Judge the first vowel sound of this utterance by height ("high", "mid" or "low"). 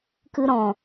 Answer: high